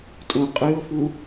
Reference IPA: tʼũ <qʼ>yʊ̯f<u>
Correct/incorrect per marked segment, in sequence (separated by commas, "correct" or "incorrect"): correct, correct